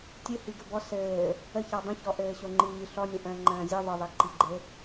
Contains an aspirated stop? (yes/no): no